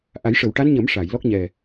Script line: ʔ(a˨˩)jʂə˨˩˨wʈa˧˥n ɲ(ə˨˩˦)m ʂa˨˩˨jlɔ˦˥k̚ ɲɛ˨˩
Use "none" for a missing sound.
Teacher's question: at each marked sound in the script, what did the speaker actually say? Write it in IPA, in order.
a˨˩˦, ə˨˩˦

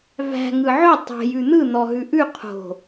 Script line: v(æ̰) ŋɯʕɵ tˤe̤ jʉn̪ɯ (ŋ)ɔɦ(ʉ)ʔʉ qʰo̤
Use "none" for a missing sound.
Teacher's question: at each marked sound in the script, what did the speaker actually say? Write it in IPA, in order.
æ̤, n̪, ʉ

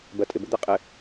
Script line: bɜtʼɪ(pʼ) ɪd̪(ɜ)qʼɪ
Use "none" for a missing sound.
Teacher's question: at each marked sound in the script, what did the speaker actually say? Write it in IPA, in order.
b, ɛ

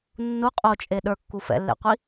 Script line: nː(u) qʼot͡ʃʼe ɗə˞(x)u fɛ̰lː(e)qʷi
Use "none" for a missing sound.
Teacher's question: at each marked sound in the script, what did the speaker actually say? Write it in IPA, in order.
u, kː, ḛ

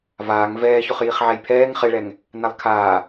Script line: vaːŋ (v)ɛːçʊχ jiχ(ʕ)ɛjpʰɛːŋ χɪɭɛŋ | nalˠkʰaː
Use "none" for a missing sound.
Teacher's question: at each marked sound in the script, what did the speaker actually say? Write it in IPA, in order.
v, ʕ

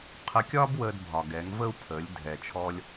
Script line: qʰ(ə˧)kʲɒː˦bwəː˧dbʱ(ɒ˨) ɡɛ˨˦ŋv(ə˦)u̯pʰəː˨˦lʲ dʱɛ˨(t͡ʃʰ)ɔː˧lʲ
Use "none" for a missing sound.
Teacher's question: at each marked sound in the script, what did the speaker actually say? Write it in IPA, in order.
ə˧, ɒ˨, ə˦, t͡ʃʰ

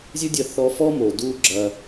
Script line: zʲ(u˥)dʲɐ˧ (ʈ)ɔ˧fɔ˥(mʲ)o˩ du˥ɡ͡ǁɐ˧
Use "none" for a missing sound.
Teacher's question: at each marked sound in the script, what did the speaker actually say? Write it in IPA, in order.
u˥, θ, m

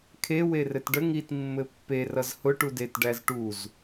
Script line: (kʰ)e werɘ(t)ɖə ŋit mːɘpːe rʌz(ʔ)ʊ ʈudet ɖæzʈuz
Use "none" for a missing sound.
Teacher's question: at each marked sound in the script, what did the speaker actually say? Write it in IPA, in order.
kʰ, t, h

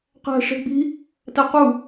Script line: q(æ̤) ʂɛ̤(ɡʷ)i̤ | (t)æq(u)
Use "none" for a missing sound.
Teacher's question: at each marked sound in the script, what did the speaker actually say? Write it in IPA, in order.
æ̤, ɡ͡b, t, u

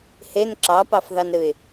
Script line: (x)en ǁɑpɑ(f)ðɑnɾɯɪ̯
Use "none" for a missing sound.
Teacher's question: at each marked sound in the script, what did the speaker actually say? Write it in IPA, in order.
h, f

